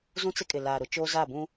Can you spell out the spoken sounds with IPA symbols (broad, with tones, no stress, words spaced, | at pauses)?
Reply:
zũ˦t͡sɪ˦kʼɪ˨ laː˨ɾʊ˨˦t͡ʃoː˦ za˦˨bũ˦